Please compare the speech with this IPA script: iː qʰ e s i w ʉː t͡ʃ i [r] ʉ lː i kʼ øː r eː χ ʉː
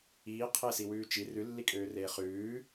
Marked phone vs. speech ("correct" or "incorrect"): correct